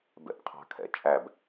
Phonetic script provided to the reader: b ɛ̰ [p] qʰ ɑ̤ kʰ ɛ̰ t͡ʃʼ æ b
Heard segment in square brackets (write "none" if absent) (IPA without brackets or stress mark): p